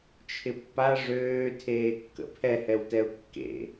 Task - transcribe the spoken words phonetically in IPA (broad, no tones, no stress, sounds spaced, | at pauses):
t͡ʃʰ ɪ pː a ʐ øː tʰ eː kː ə̰ pʰ ɛ h ɛ w t ɛ ʊ̯ kː ḛ